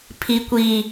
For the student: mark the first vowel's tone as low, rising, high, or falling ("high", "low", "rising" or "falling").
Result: high